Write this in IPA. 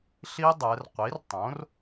ɬ i˦˥ dˤ ɛ˩˧ r qʷ i˩˥ r tˤ õ˩˥ r

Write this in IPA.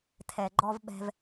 tʰ ɛ˨ ɡ͡ǃ ɔ˦ v ɓ ɛ̤˦ v

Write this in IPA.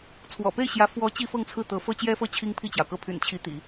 t͡sʰ w ɔ̰˨˩ p e˥˩ ɪ̯ ɕ j ä˧˥ f w ɔ˧˥ t͡ɕ i˥ f ɤ˥˧ ŋ t͡sʰ ɹ̩˥˩ t̪ ɤ˧˥ f ɤ˥ t͡ɕ j ɛ˥ f ɤ˥˩ t͡ɕʰ i˥ ŋ pʰ i˥˩ t͡ɕ j ɑ˩ ʊ̯ k ɤ˥˩ pʰ y̰˨˩ n t͡ɕʰ i˧˥ t̪ ḭ˨˩˦

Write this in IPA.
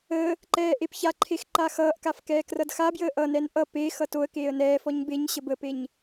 əː | ǃ ɛː ʔ e p ç a ǃʰ e x ǃ a x ʌː ʔ k a f k ɛː k r ʌ d x a b j əː ʔ ʌ n ɛ n ʔ ʌ p e x ʌ t o ə̯ k eː ə̯ n ɛː f ɔ ɲ b e ɲ ɕ ə b ə p e ɲ

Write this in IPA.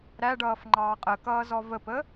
ɾ æ ɖ ʌː f ŋ͡ǃ ɑː qʼ ə k ʌː z ɔ v ə p ə

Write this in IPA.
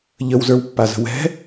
ʎ ə w z ə˞ w pː a z ə̤ w ɛ̤

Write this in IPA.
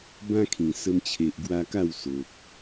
b ã˦ kʰ ĩ˨˩ s ə˧ m t͡ɕʰ e˨ ʔ ɡ w a˧ k a˥˧ w s o˨ k̚

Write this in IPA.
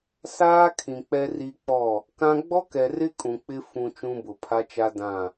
s aː˦ kʰ ĩ˨ k͡p ɛ˦ r i˦ k͡p ɔ˦˨ | k ã˦ ɡ͡b ɔ˦ k ɛ˨ r ɪ˦ kʼ ũ˨ k͡p ɪ˦ f ũ˨ t͡ʃ ũ˦ b ʊ˨ pʰ a˦ t͡ʃ a˦ d ã˦˨

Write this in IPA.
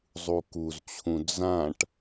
zˤ u k u z t͡ɕʰ ũ d͡z ã ʈ

